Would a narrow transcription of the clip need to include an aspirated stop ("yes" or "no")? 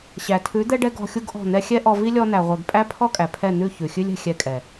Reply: yes